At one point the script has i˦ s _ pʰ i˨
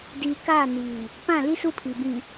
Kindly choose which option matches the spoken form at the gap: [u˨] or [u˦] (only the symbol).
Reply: u˦